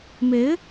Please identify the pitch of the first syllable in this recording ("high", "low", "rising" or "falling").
rising